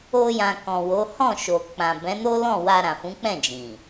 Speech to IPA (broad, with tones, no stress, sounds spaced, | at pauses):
o˧ j ã˨ k ɔ̃˨ w o˨˦ h ɔ̃˦˨ ʃ o˨ k͡p ã˨ b ɛ̃˨˦ n o˦ l ɔ̃˦˨ w a˧ ɾ ã˨ f ũ˨˦ k͡p ɛ̃˦˨ d͡ʒ ĩ˨